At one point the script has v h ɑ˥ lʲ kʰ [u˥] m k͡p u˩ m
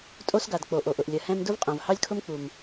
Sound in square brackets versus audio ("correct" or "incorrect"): incorrect